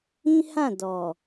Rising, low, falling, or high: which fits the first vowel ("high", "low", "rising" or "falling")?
high